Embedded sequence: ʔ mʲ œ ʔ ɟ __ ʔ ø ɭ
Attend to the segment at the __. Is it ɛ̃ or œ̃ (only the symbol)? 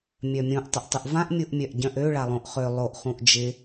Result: œ̃